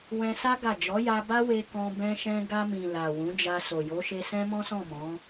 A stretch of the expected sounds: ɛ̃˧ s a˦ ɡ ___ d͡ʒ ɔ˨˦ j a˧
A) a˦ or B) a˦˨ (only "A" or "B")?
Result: B